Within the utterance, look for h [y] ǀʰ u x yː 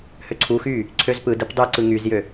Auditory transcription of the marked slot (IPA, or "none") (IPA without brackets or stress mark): ø